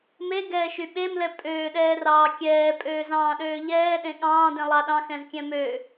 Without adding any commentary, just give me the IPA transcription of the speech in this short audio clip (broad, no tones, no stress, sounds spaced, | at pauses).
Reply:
m e ɡ ɛː ʃ y ɓ e m l ɛ pʼ øː ɗ ɛː r ɑː kʲ ɛː pʼ øː z ɑ̃ː ɗ øː ʎ ɛː ɗ ẽ ɠ ɑ̃ː d ẽ lˠ ɑ ɗ ɑ̃ x ɛ̃ z kʲ ɛ̃ m ø